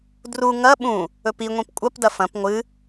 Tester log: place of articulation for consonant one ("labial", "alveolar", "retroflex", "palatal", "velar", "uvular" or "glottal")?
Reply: alveolar